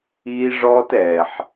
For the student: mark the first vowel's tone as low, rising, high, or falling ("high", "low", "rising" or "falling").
high